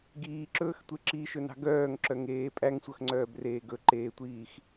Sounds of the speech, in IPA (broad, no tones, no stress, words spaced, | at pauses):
ɡiːǁɵːxtʷe ǁiːʃɵnɑ̤ ɡœːŋǁœŋeː pʼæŋsʷœxŋ͡ǀœːbreː ɡɵǃeːtʷiːx